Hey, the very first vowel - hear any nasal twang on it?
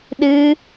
no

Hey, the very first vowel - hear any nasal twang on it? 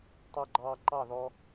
no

